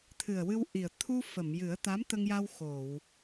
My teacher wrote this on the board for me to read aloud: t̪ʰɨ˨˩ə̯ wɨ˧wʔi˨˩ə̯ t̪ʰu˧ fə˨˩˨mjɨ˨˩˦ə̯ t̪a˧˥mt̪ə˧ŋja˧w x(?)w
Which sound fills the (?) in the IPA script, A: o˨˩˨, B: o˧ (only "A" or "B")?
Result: A